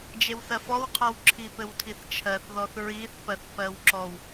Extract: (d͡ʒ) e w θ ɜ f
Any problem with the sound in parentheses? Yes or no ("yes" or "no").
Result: no